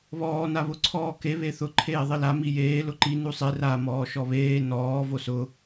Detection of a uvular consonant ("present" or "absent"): absent